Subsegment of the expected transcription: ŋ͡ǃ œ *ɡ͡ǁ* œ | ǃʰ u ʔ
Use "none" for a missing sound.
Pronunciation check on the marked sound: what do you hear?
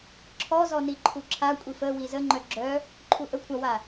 ɡ͡ǁ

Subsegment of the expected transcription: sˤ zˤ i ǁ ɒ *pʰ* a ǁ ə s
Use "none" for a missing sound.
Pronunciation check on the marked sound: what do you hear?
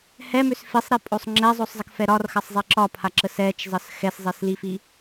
pʰ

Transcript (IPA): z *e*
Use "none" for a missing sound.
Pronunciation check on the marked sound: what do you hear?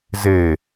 e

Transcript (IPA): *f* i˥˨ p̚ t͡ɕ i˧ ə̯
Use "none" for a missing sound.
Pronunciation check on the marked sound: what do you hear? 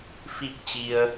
f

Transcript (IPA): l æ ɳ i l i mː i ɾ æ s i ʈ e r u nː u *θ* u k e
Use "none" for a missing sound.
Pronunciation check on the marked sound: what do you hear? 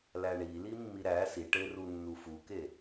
f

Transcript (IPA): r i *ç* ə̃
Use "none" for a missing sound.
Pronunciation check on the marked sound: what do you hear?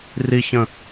ç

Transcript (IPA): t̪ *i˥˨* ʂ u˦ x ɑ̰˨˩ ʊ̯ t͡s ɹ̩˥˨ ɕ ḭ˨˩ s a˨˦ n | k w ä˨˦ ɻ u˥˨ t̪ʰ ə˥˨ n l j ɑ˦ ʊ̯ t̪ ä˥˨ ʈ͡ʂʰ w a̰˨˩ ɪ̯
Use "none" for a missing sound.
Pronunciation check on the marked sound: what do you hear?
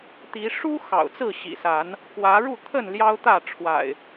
i˨˦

